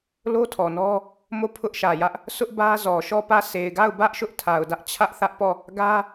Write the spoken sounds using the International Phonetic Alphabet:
l o˦ tʰ ɔ˨ n ɔ˦ | m o˦˨ pʰ ʊ˦ ʔ ʃ ä˨ j ä˦ ʔ | s ʊ˦ ʔ b ä˦ z ɔ˨ ʃ ɔ˦˨ p ä˦˨ sʰ e˨ ɪ̯ ɡ a˦˨ ʊ̯ b ä˦ ʔ ʃ ʊ˦ ʔ tʰ a˨ ʊ̯ d ä˦ ʔ t͡ɕʰ ä˦ ʔ θ ä˦ ʔ p ɔ˦˨ | ɡ ä˦

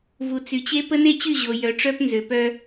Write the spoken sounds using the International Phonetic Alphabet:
v u˨ t͡s y˨ t͡ɕ e˦ p ə˦ n e˦ t͡ɕ y˦˨ ʑ o˨ j œ˨ ʈ͡ʂ œ˦ p n z ø˨ p œ˦

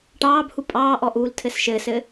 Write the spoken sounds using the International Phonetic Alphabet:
ʈ ɑː b h u pʼ ɑː ʔ ɔ ʔ uː l tʰ ɘ s ʃ ɘː s ɘ

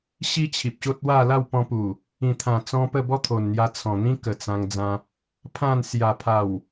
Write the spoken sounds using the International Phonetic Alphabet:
ɕ i˦ t͡ɕʰ i˨ p̚ ɕ o˦ t̚ w a˥˧ l a˥˧ w p ɔ̃˧ p u˨˩ | ĩ˨˩ t̪ʰ ã˨˩ t͡s ɔ̃˧ p ə˥˧ b ɔ˦ t̪ʰ o˨˩ n n̪ j a˧ t͡sʰ ɔ̃˨˩ n̪ ĩ˦ k ə˨˩ t͡s ã˧ ŋ d͡z ã˧ | pʰ ã˥˧ n s j a˨˩ pʰ a˨˩ w

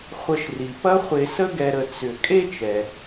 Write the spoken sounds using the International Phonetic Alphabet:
χʷ ə˨ ʃ r i˩ p ɐ˦ χʷ e˨ s ə˦ ɡ ɛ˨ ɾ ə˨ t͡s ʏ˩ kʼ e˥ t͡ʃ ɛ˩

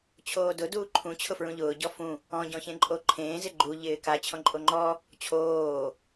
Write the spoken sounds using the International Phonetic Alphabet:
t͡ɕʰ oː d ʊ d uː ǃʰ ũ t͡ɕʰ ʊ f ɹ ũ ʎ ʊː ɟ ɔ f ũ | ɔ̃ ɟ ɔ̃ ç ẽ ǃʼ o ǃʰ ẽː z ɪ ɡ͡ǃ u ʎ ɪː k a t͡ɕʰ ɔ̃ ǃʼ o ŋ͡ǃ ɔ | t͡ɕʰ oː

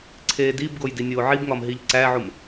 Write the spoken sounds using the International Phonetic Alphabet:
ǀʰ eː d i b ɡ o j d i nʲ oː ʕ i b ŋ ɒ m ɦ i ʎ ǀ æ ʕ u m

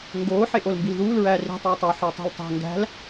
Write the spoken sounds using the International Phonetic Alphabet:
ŋ ɡ oː ħ e ʔ o l m b i l ð uː l ɹ æː r i̤ tˤ uː tˤ o ħ æ tˤ ṳ l tˤ æ̤ ŋ ɡ æ̤ l

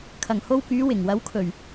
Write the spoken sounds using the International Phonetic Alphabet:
kʰ ɐ˨˩ ŋ h o˧ w k yː˨˧ w ɪ˨˩ ŋ w ɐ˨˥ w kʰ ɵ˨˩ ɥ

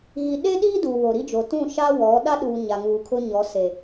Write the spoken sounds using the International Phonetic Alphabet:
ɣ i˨ ɗ e˦ ɗ iː˦ d uː˨ β o˨ ɾ i˦ d͡ʒ o˨ t ũ˦˨ ʃ a˦ w ɔ˨˦ ɗ a˦ ɗ uː˨ ɲ a˨ ŋ uː˨ kʰ ʊ˦ ɲ ɔ˨˦ s e˨

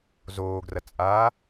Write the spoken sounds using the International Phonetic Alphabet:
z oː ɡ r ɐ t͡sʼ aː

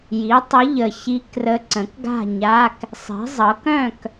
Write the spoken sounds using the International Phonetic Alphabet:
j i˩˥ tˤ ə˧˥ ʎ ə˨˩ ç i˧˥ k r ə˧˥ ǀ ə̃˩˥ k ɡ a̤˥˨ ɲ a˧˥˧ k | sˤ i̤˩˥ zˤ ɤ˩˥ k œ̃˥˨ k

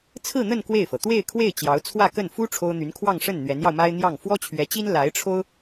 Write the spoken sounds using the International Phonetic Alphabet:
t͡sʰ ɹ̩˥˧ n̪ ə˥˧ n k w e˥˩ ɪ̯ f ɤ˩ t̪ w e˥˧ ɪ̯ kʰ w e˥˩ ɪ̯ t͡ɕ j ɑ˧˥ ʊ̯ t͡sʰ w ä˥˧ k ə˥˩ n f u˥ ʈ͡ʂʰ o˥ ʊ̯ n̪ y˧˥ n kʰ w ɑ˥˧ ŋ ʂ ə˥˩ n n̪ ɥ ɛ˧˥ n j ɑ˧ ʊ̯ m a˥ ɪ̯ n̪ j ɑ˥˩ ŋ f w ɔ˥ t͡ɕʰ ɥ ɛ˧˥ t͡ɕ i˥ n l a˧˥ ɪ̯ ʈ͡ʂʰ o˥ ʊ̯

